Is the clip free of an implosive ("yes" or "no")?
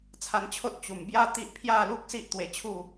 yes